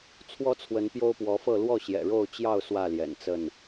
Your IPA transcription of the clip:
t͡sʰwɔ˦t͡sʰwə˨˦n pjo˦ʊ̯pwɔ˨˦fɤ˥˨ lwɔ˥˨ɕjɛ̰˨˩ɻo˥˨ʊ̯ t͡ɕjɑ˥˨ʊ̯ swä˥˨ljɛ̰˨˩nt͡sə˥˨n

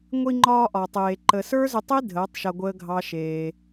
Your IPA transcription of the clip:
ŋʷi˧ŋ͡ǃɒː˧ ʔɒ˨tˤeː˨ ǃə˨sə˞˦zʏ˧tˤi˦ dʱəː˨˦tˤʃa˧ ɡʷəː˦ɡʱɑ˦ʃeː˧

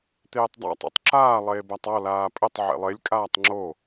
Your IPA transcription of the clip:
t̪eːtˤdˤa̰ tˤo̰tˤǁaː lˠeːbatˤɔ laːpʼɘtˤ ʕḛlˠelʲ kʼaːtˤŋ͡ǁo

